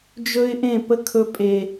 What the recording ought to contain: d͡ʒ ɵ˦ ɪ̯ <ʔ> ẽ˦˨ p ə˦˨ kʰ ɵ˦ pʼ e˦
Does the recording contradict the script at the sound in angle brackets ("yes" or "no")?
no